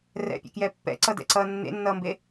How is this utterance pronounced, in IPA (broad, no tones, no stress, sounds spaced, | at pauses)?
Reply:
r ɛ̰ pʲ ḛ k j ɛ pː ɛ̰ ǀ ʌ d ɛ̰ ǀ ʌː nː ḛ nː ʌː m b e